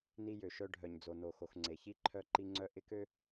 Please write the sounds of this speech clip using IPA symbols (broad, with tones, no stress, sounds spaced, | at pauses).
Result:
n i˦ j ø˨ ʃ œ˦ ɖʱ œ˨ ɲ d͡z o˨ n o˨ x o˨ x ŋ͡ǀ e˨ ç i˦ ǃʰ œ˦ ǃ i˦ ŋ͡ǀ œ˦ ʔ ɪ˦ k ø˦